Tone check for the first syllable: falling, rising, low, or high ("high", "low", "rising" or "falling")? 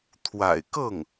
low